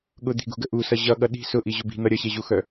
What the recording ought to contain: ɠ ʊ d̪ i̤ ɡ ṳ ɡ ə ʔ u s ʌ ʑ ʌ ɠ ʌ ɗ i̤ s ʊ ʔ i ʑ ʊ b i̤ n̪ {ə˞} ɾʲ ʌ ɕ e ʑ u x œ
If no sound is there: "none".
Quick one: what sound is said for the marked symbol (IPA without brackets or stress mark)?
ʌ